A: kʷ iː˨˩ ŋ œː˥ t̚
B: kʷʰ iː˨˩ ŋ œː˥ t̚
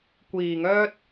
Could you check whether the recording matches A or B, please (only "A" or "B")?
A